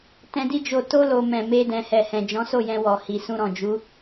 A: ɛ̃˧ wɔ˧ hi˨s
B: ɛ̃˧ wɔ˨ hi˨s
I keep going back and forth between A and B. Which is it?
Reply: B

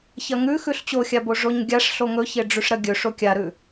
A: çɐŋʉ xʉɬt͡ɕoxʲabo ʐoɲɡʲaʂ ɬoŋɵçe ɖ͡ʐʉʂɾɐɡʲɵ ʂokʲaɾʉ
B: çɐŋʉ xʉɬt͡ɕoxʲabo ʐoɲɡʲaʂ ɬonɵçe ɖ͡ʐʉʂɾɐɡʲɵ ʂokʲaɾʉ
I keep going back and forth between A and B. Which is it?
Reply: A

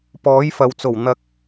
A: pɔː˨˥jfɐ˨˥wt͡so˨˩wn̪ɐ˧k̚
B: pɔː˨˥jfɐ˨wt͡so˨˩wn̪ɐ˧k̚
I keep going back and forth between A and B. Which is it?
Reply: B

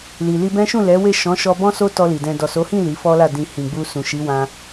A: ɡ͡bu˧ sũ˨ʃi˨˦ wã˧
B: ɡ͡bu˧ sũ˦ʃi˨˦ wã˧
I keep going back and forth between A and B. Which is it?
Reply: A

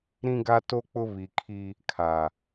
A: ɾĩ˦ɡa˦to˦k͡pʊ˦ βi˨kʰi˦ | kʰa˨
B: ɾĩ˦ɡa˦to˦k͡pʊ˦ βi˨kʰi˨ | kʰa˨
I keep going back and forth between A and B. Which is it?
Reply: A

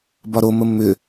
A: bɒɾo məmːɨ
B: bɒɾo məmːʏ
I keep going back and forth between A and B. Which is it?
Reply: B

